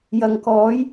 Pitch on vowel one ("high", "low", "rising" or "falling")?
low